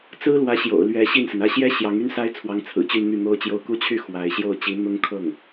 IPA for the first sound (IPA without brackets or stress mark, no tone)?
t͡s